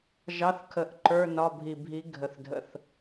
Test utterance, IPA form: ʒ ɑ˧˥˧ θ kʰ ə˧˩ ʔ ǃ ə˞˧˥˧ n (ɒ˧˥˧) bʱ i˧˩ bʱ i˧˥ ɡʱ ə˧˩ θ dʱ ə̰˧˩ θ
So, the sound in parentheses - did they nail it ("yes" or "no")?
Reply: yes